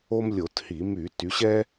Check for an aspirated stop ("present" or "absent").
absent